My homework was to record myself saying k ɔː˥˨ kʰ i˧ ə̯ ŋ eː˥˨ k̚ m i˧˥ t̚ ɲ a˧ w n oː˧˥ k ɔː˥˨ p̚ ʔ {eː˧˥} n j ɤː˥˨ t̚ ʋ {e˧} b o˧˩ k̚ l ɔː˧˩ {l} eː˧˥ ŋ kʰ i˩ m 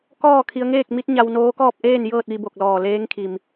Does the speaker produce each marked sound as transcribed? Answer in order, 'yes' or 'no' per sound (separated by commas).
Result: no, no, yes